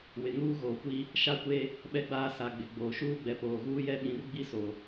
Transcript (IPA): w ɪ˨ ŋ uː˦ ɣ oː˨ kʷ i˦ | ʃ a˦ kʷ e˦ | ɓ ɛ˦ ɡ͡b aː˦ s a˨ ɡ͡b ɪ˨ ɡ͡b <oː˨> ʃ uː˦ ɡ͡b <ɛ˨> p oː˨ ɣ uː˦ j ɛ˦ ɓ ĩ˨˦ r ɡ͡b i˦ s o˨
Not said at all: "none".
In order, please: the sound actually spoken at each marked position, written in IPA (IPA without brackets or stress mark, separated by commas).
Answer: oː˨, ɛ˨